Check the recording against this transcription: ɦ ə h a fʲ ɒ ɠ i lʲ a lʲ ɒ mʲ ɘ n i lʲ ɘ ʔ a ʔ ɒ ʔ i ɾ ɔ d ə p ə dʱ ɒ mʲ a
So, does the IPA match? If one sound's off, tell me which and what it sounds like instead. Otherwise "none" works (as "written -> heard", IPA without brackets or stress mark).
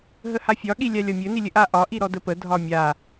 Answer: none